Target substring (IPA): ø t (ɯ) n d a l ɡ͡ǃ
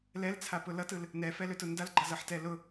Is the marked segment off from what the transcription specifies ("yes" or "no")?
yes